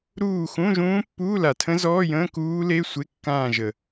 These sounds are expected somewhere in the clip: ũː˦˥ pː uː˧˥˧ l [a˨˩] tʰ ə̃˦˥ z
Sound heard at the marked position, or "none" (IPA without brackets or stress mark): a˨˩